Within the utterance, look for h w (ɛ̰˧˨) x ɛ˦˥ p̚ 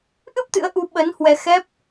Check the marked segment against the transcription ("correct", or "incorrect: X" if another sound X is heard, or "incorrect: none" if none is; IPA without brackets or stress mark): incorrect: ɛ˧